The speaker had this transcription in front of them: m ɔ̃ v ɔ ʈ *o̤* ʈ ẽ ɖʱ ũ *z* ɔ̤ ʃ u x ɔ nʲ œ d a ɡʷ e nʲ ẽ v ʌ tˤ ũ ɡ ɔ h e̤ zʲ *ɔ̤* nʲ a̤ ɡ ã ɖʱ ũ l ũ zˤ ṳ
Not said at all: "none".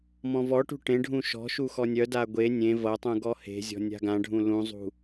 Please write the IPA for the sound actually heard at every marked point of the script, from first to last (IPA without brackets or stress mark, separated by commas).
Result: ṳ, ʃ, ɔ̤